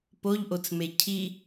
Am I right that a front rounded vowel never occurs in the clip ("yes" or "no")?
yes